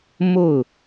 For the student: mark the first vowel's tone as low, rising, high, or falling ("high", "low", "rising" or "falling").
falling